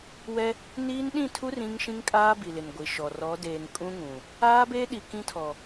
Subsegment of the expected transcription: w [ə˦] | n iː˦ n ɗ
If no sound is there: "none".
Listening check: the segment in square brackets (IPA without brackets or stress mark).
ɛ˦